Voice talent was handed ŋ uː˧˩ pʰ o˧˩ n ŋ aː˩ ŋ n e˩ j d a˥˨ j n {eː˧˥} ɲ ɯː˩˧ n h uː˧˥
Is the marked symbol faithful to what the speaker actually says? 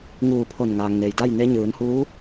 no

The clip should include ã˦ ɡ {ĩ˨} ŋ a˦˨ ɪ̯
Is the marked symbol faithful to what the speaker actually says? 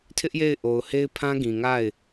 yes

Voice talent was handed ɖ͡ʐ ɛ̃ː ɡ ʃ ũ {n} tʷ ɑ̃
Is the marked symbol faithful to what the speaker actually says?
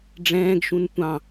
yes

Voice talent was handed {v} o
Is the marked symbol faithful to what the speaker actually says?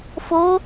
no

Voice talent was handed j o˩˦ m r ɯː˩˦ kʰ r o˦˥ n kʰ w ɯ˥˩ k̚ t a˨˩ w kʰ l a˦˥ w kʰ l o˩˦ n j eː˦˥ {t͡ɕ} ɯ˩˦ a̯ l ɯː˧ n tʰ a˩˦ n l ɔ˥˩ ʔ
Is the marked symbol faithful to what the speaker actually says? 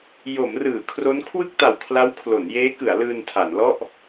no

